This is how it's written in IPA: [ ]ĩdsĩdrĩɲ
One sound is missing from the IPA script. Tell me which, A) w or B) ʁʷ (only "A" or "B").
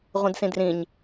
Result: B